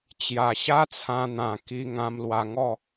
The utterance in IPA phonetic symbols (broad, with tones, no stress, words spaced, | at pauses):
t͡ɕja˨˩ɕa˦t͡sʰã˧n̪ã˨˩ ki˧ŋã˧m lwa˧ŋɔ˥˧